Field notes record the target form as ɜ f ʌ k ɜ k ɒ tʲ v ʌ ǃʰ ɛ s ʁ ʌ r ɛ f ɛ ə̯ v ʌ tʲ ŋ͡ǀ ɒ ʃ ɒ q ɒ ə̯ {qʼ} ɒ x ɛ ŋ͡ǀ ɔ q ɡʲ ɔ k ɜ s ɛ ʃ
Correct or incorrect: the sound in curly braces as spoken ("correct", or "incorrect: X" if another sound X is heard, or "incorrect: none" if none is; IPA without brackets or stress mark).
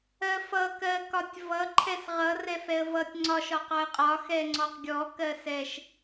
correct